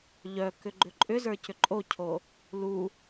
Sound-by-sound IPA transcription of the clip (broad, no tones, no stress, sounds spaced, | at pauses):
ʎ œ k ʏ ɡ͡ǃ ʏ ǃʼ ʏ z ə˞ c ʏ ǃʼ o cʰ o | l u